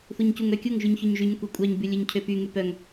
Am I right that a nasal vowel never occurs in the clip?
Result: yes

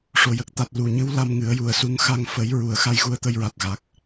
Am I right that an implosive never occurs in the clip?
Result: yes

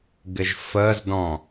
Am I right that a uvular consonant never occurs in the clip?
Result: yes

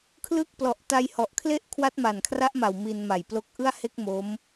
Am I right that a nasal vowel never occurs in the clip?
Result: yes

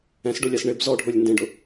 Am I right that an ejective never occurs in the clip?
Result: yes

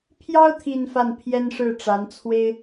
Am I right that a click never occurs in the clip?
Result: yes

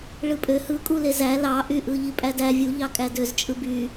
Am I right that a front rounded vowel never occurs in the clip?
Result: no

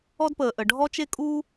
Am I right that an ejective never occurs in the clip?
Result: no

